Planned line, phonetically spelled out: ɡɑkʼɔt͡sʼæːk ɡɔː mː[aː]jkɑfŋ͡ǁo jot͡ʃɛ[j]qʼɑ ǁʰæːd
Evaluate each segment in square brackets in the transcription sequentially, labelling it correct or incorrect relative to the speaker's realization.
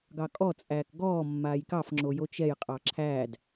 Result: correct, correct

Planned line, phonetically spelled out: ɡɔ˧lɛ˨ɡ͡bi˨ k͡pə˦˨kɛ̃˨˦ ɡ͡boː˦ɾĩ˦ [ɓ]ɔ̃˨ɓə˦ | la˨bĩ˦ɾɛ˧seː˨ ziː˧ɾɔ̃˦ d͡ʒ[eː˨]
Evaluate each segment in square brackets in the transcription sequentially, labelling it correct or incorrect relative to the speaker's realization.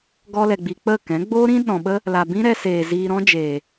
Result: incorrect: ɗ, correct

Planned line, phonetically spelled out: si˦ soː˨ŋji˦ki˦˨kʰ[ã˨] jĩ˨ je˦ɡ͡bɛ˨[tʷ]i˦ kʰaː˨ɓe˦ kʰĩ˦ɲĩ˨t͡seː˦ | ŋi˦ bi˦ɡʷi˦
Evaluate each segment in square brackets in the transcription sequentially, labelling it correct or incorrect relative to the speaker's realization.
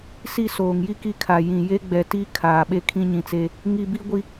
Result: incorrect: a˨, incorrect: t

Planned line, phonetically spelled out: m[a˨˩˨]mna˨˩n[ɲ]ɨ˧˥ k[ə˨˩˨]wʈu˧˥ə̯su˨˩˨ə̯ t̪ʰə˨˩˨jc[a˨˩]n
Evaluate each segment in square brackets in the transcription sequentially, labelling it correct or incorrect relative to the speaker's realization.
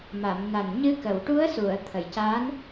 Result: correct, correct, correct, incorrect: a˧˥

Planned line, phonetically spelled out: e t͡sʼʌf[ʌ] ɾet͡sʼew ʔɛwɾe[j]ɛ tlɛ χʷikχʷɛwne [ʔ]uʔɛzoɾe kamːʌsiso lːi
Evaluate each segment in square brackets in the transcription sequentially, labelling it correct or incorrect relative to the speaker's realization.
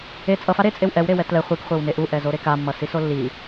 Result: incorrect: a, incorrect: w, correct

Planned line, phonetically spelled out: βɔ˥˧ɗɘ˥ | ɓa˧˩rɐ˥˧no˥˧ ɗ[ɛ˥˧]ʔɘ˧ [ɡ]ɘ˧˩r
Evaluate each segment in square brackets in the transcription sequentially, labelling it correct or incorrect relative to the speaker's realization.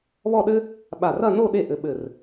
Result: incorrect: e˥˧, incorrect: ɓ

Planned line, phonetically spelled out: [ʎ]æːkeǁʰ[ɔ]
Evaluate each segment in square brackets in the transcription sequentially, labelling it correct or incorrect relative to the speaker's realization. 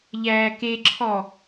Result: correct, correct

